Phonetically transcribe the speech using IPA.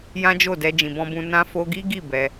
j ã˦ d͡ʒ o˦˨ d ɛ˧ d͡ʒ ĩ˨ b ɔ̃˧ b ũ˧ n ã˧ f o˧ ɡ i˦ ɡ i˦˨ b ɛ˧

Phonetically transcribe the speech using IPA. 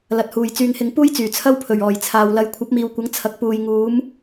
l ɐ˨ t̚ h uː˨ j t͡s yː˨ ŋ h ɪ˨˧ ŋ p uː˥ j t͡s yː˨˩ t͡sʰ ɐ˥ w pʰ ɵ˨˩ ɥ ɔː˨˩ j t͡sʰ aː˨ w l ɐ˨˧ j kʷʰ ɐ˨˥ p̚ m iː˨ w kʷ ɐ˨˥ ŋ t͡sʰ ɐ˨ k̚ p uː˨ j ŋ uː˨˥ m

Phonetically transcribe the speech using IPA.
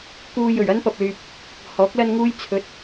k uː˧ j ɵ˨˩ ɥ ɐ˥ n p ɐ˧ p̚ l yː˧ p̚ | h ɔː˨˥ k̚ l ɐ˥ n ŋ uː˥ j t͡sʰ ɵ˨˥ t̚

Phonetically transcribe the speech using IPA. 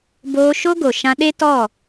b oː˧ ʃ o˦ ɡ o˨ ʃ ã˧ ɗ e˦ t ɔ˦˨

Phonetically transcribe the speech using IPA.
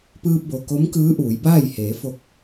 p ɯː˧ p̚ b o˩ k o˧˥ m k ɯː˧˥ ʔ uː˩˧ j b aː˥˨ j h eː˩˧ f o˧ k̚

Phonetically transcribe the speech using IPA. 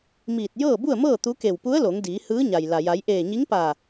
m iː˧˩ t̚ j ɤː˥˨ b u˥˨ ə̯ m ɤː˥˨ t̪ u˧˥ k e˧˩ w p u˧˥ ə̯ l o˩˧ ŋ d iː˩˧ h ɯː˧˥ ɲ a˩ j l a˩ j a˩˧ j ʔ eː˧˩ ɲ i˧˥ ŋ p aː˧˩

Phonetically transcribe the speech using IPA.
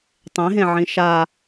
tˤ ẽ ɦ ẽ ʕ ĩ ʃ a

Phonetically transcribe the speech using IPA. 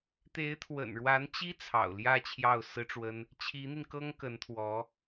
t̪ e˧˥ ɪ̯ t̪ʰ w ə̰˨˩ n ɻ w a˧˥ n t͡ɕ i˥ t͡sʰ ɑ̰˨˩ ʊ̯ l j ä˥˧ t͡ɕʰ j ɑ˥˩ ʊ̯ s ɹ̩˥ ʈ͡ʂ w ə˥ n | t͡ɕʰ i˧˥ n̪ i˧ n k ɤ˥ ŋ k ə˧˥ n t̪ʰ w ɔ˧˥

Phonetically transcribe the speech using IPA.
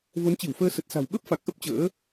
v o˨˦ n t͡ɕ i˧˩ w f əː˧ s ə˨˩ t̚ s a̤˨˩ w ɓ ə˦˥ p̚ f a˨˩ k̚ ʔ ə˦˥ p̚ t͡ɕ ə̰ː˧˥

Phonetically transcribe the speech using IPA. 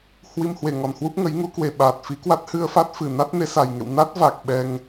h w i˧ m h w e˨˩ ŋ ɔ˨˩ n h w u˦˥ p̚ ŋ ə˨˦ j ŋ u˨˦ k w e˨˩ ɓ aː˨˩ t̚ f i˨˦ k w a˦˥ t̚ h ɨ˧ ə̯ f a˦˥ t̚ f ɨ˨˩ n a˦˥ t̚ n e˨˦ s a˨˩ j ŋ ḛ˧˨ w n a˦˥ t̚ v a˨˩ k̚ ɓ ɛ˧ ŋ

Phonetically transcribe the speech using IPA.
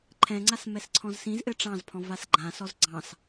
ǃʰ ɛ̃ ŋ͡ǀ a s m ɛ s ǀʰ ɔ̃ z s ĩ z ʔ ɘ ʈ͡ʂ ɑ̃ z pʰ ɔ̃ v a s ɡ͡ǃ ã s ɔ z ɡ͡ǀ ɑ̃ s

